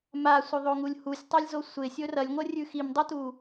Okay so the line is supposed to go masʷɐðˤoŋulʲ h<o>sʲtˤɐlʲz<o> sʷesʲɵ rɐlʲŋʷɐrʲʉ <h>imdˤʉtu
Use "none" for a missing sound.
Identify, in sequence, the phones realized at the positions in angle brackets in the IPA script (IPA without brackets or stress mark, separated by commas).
u, o, x